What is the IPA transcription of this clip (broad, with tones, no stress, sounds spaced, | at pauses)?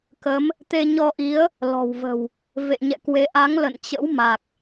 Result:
k ə˨˦ m | t̪ e˧ ɲ ɔ˧ ʔ i˨˦ ə̯ | l ɔ̤˨˩ w v ə̤˨˩ w | v ḛ˧˨ ɲ ɛ̰˧˨ k w e˨˦ ʔ a˨˦ ŋ l ə̰˧˨ n t͡ɕ ə̰˧˥ w m a˨˩ k̚